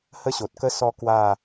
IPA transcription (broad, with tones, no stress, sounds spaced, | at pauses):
h ə˦ ɕ o˨ t̚ k ə˧ s ɔ˧ k w a˥˧